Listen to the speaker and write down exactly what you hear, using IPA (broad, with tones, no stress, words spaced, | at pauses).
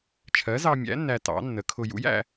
t͡ʃʰɜ˩˥zɑ˧mʲæ̰˩˥ nːæ˧tɑ̰˩˥nːə˩˥kʰʊ˧ jṵ˩˥jæ̰˧